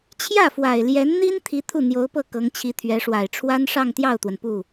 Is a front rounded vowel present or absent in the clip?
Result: absent